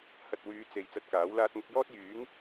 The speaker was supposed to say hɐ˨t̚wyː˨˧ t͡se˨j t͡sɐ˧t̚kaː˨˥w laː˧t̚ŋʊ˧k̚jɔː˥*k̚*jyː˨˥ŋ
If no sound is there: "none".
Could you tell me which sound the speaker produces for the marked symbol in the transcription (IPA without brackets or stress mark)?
t̚